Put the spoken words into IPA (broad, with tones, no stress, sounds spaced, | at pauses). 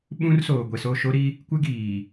ɓ ũ˦ r s oː˨ ɡʷ e˨ s o˦˨ ʃ o˦ ɾ i˦ | kʷ ɪ˦ ɡ iː˨